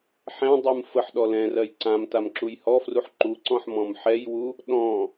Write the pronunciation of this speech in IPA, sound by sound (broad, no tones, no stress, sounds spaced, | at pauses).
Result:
ħ ɛ̃ dˤ u m f ə ħ ɗ ɔ l ɛ̃ r ɜ j ǀ ã m t a m ǁ u j h ɔ f r u ħ ǃ u ǀ ɔ̃ ħ m ɔ̃ m ħ ɛ j w u | ɗ ɔ̃